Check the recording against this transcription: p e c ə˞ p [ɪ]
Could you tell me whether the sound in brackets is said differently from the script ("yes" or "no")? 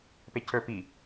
yes